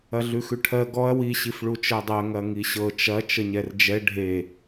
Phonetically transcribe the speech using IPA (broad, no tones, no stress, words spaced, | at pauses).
ɐɮʉxʉʈʰɜ ɡɔɐ̯ wi ɕifɭut͡ʃɜdˤɜ ŋɐŋiɕɤ t͡ʃɐ t͡ʃəɲɛrd͡ʒɛ ɖʱe